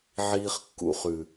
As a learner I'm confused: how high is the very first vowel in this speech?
high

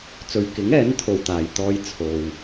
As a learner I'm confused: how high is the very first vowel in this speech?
mid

